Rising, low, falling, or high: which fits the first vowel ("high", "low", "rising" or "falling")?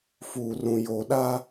low